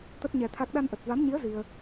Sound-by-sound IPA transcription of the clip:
t̪ ə˦˥ t̚ ɲ ɛ˧ t̪ʰ a˦˥ k̚ ɗ a˧ n ʔ ə˨˩ t̚ v a˨˦ m ɲ i˨˦ ə̯ z i˧ ə̯

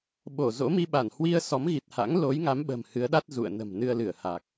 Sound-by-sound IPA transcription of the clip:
ɓ o˧˩ z o̰˧˥ m i˧ ɓ a˧˩ n h w i˧ ə̯ s ɔ˨˦ m ɣ i˨˩ t̚ h a̰˧˥ ŋ l o˨˦ j ŋ a˨˦ m ɓ ə̤˨˩ m h ɨ˨˦ ə̯ ɗ a˦˥ t̚ z ṵ˧˨ ə̯ n ə̤˨˩ m n ɨ˧ ə̯ l ɨ˧˩ ə̯ h a˨˩ k̚

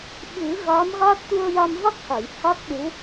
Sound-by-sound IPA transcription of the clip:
ɓ ɨ˨˩˦ ɣ a˧˥ m ɣ a˦˥ t̚ t̪ u˧ ə̯ j a˧ m v a˦˥ k̚ h a˨˩˨ j h a˦˥ k̚ ɗ u˧˥

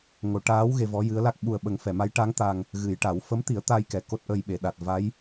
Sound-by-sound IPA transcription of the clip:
ŋ o˨˩˨ ʈ aː˧˥ w ɣ e˧ v ɔ˧˥ j ɨ˧˥ ə̯ l a˦˥ k̚ ɓ u˨˩ ə̯ ɓ ə˨˩ ŋ f ɛ˨˩˨ m a˧˥ j ʈ a˧˥ ŋ t̪ a˨˩ ŋ | ɣ ɨ˨˩˨ j ʈ a˨˩˦ w f ə˧˥ m t̪ i˨˩˦ ə̯ t̪ a˧ j k ɛ˨˩˨ k o˦˥ t̚ ʔ ə˧ j ɓ e˨˩˨ ɗ a˨˩ t̚ v a˧˥ j

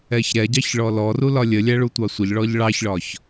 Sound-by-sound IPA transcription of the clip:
ɛ ç ɾ ɛ ɟ ɑ ç ɭ ɔ l ɔ r u l ɒ lʲ ə lʲ æ ɭ u tʷ ɑ sʷ ə ʎ ɭ ɔ ʎ ɭ ɑ ç ɭ ɒ ç

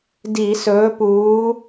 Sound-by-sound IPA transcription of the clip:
d i˧˩˧ s ɵː˨˥ p uː˨˥

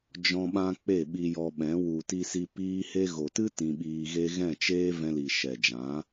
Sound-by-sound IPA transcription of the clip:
d͡ʒ ɔ̃˧ ɓ ã˧ k͡p e˦˨ ɓ i˧ j ɔ˧ ɓ ɛ̃˨˦ w u˨ t i˧ s i˧ p iː˦ h e˦ ɣ o˨ t ɨ˦ t ĩ˧ ɓ iː˧ ɣ e˦ ɣ ɛ̃˦˨ t͡ʃ eː˦ v ɛ̃˧ l i˨ ʃ ɛ˨ d͡ʒ ã˨˦

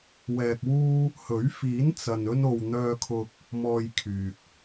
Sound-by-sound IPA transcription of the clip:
w ɛː˧ k̚ w uː˥ | h ɵ˨˥ ɥ f iː˨˥ n t͡s ɐ˨ n ɵ˧ n o˨ w n̪ œː˧ kʰ ʊ˧ k̚ | m ɔː˨ j kʰ yː˨ k̚

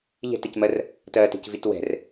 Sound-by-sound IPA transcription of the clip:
ʎ ɛ̤ t ɛ c m ɜ r | t ɜ t e̤ c v i t w ɛ̤ r

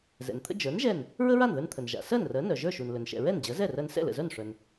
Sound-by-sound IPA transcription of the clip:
z ɛ̰˩ n t̪ʰ ə̰˥ d͡ʒ ə˞˩˥ n ʒ ɛ˥˩ n | ɹ ə˥ ɹ a˥˩ n ð ə˞˧ n t̪ʰ ə˩ n ʒ a̰˩ s ɜ˥˩ n r ɜ˩˥ n œ˩ ʒ ə˞˥˩ ʃ u˩ n l ɵ˩ n ʃ ɛ̰˩ ɹ ɛ˥˩ n d͡ʑ ɜ˩˥ z ɛ˥˩ r ɜ˧ n s ɛ̰˥˩ l ə̰˩ z œ˥˩ n ʂ œ˩ n

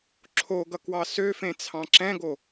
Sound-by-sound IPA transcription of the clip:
ǁʰ o ɡ ʌ k w ɑ s ø f ẽ t͡sʰ ɑ̃ ǁ ɛ̃ ɡ o

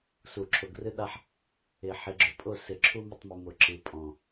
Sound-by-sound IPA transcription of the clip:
s u˨˩˦ ǁʰ ʊ˨ ɡ r ɨ˦ ɗ a˦ ħ | ɪ˨˩˦ ħ ɪ˨ ɡ͡ǁ ʊ˨˩˦ pʼ ʊ˦˨ s ɪ˨˩˦ ǁʰ u˦ m ɪ˦˨ tˤ m ɨ˨ m ʊ˨˩˦ ǁ ɨ˨ pʼ ɔ̃˦˨

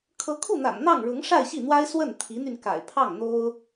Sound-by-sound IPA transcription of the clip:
kʰ ɤ˧˥ kʰ u˥˩ n̪ a̰˨˩ n n̪ ɑ˥˩ ŋ ɻ ʊ˧˥ ŋ ʂ a˥˧ ɪ̯ ɕ i˥˩ n̪ w a˥ ɪ̯ s w ə˥˩ n t̪ʰ i˧˥ n̪ y˧ n k a̰˨˩ ɪ̯ pʰ ɑ˥˩ ŋ n̪ o˥ ʊ̯

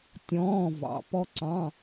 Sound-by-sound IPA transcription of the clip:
tʲ ɔ̃ː˧˥˧ v ɑ̰˨˦ p ɔ˦˥ ǀ ɑ̃˧˥˧

